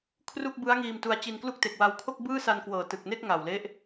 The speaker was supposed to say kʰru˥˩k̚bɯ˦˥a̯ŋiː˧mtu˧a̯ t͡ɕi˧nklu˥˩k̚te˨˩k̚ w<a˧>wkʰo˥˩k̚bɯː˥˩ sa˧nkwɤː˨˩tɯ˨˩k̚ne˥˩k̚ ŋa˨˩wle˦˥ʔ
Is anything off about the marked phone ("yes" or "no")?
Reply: no